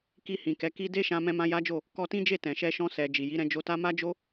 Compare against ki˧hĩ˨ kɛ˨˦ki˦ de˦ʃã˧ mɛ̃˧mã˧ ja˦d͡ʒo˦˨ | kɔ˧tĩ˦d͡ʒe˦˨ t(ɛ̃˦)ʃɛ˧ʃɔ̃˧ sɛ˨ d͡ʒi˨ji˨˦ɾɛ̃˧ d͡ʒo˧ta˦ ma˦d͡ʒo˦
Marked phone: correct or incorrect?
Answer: incorrect: ɛ̃˨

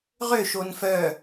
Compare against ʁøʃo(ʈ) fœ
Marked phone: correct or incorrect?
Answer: incorrect: n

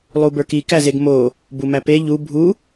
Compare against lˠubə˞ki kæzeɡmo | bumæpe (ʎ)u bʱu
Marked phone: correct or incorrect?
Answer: correct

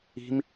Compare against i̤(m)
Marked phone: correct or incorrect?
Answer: correct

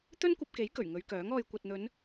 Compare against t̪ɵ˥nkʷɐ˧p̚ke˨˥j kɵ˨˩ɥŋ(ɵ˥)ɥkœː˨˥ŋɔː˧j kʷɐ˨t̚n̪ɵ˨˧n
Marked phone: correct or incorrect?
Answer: incorrect: ɵ˨˧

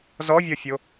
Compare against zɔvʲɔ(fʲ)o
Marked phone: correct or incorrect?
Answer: correct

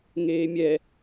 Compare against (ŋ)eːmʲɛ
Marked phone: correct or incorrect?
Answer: correct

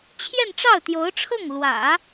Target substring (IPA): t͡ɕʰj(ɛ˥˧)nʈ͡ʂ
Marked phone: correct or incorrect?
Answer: correct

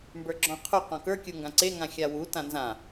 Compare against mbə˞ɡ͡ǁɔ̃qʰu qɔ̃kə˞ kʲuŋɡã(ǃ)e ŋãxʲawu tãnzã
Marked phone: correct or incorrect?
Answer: incorrect: ǀ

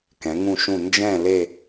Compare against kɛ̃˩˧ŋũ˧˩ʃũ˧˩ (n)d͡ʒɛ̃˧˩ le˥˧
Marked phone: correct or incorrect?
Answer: correct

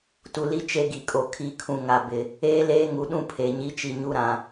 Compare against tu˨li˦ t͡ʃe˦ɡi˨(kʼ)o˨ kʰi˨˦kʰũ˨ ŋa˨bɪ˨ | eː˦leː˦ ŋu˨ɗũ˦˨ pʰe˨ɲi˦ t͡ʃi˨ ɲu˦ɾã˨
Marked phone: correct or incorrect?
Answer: correct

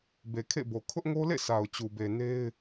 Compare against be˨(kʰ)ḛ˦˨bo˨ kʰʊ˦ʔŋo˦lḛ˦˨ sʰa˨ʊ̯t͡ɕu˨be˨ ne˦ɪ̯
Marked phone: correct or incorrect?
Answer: correct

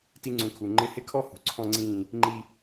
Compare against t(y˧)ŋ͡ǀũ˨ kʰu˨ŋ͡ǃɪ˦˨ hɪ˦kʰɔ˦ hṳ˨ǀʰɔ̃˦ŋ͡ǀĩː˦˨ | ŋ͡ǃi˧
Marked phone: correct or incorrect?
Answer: incorrect: i˧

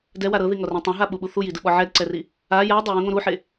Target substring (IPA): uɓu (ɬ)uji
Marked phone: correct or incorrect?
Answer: incorrect: θ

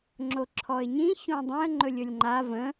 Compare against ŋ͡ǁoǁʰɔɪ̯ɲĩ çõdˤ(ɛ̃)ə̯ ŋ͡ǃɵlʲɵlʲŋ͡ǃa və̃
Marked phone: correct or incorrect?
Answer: correct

